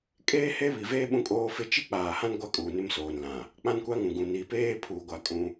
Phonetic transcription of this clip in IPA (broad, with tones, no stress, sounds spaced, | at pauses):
kʼ eː˦ h e˦ β i˨ v eː˦ ɓ ũ˦ kʼ oː˦ f ɪ˦ t͡ʃ i˦ k͡p aː˨ h ã˦ n ɡʷ a˦ kʼ uː˨ n ɪ˦ m s oː˨ n l ã˨ | k͡p ã˦ n kʷ a˦ ŋ ũ˨ ɡ ũ˨ n i˨ p eː˦ pʰ uː˨ ɡʷ a˨ kʼ ũ˦